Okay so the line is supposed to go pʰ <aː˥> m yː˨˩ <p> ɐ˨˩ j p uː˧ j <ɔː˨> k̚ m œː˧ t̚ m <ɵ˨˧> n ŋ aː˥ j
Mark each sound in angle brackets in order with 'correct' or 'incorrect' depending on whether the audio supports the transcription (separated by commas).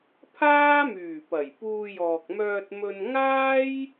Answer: correct, correct, correct, incorrect